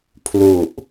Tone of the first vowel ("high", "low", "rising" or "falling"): low